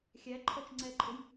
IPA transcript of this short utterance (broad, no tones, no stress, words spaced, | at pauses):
xʲæǃʰɔt͡ʃŋ͡ǀɛǃʼʊj